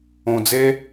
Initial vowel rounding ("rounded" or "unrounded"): rounded